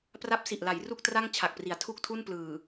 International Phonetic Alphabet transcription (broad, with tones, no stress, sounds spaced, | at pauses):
p r a˦˥ p̚ s i˨˩ ʔ l a˩˦ j r u˥˩ k̚ t r a˥˩ ŋ t͡ɕʰ a˨˩ k̚ p r i˩˦ a̯ tʰ u˥˩ k̚ tʰ u˥˩ n p l ɯː˨˩